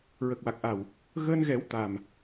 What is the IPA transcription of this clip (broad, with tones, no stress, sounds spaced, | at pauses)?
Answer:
ɹ ə˨˩ k̚ w a˨˩ k̚ ʔ a˨˩ w | ɣ əː˧ n ɣ ɛ˨˩˦ w t̪ a˨˩ m